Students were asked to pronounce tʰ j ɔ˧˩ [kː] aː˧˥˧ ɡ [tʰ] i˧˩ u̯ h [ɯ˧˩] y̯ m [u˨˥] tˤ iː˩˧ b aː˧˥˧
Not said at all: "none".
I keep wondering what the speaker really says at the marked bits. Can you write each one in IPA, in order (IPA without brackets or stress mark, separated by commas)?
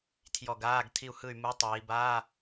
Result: ɡ, tʰ, ɯ˧˩, u˨˥